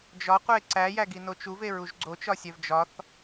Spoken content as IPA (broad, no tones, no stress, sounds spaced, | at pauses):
d͡ʒ ɒ qʷ e ǀ æ j æ ɡ i n o t͡ʃ u v e ɹ u ʒ ɡ͡ǀ o t͡ʃ ɒ sʲ æ v d͡ʒ ɒ θ